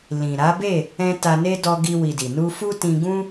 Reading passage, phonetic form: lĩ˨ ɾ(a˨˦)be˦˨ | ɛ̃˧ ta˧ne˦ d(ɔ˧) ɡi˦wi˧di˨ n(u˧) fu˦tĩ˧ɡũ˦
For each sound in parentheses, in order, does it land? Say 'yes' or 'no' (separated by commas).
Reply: yes, yes, yes